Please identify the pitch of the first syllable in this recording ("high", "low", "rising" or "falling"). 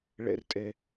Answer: high